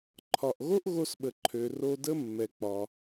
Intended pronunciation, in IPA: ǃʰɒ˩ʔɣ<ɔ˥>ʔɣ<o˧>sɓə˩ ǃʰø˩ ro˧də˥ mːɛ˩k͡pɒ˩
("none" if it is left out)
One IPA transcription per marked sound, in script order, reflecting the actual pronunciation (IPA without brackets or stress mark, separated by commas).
o˥, o˧